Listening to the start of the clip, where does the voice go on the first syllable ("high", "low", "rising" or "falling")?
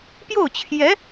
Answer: falling